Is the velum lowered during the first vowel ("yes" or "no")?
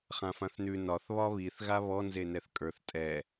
yes